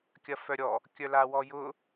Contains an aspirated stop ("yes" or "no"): no